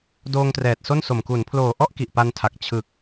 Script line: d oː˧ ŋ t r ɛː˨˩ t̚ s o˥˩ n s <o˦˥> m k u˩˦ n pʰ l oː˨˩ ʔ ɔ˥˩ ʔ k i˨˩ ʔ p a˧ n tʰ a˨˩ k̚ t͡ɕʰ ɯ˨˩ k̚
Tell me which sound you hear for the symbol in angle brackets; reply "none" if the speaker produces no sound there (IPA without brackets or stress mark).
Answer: o˨˩